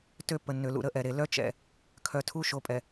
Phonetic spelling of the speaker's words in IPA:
t ø˦ pː ə˨ nː ø˨ l ṵ˨ ɾ ə˦ ʔ ɛ˨ ɾ e˨ l œ˦ t͡ʃ ɛ̰˨ | kʰ œ˨ tʰ u˦ ʃ o˨ pʼ ɛ˨

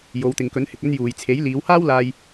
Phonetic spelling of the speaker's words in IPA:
j o˨˧ w t̪ ɪ˨ ŋ k ɵ˨˥ n h ɪ˨ k̚ ɵ˧ n j uː˨ j t͡sʰ e˨˥ j l iː˨˧ w h aː˥ w l aː˧ j

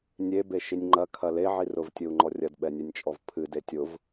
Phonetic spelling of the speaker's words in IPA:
nʲ e b e ʃ i nʲ ŋ͡ǃ ɐ kʰ ɐ l e ʕ i r ʊ v tʲ ɨ u̯ ŋ͡ǃ ɔ rʲ ɐ d ɓ ɛ nʲ ɛ nʲ t͡ʃʼ ɔ v pʰ ɨ d e tʲ ʊ v

